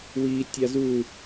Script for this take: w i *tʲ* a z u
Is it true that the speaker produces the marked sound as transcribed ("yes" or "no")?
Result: yes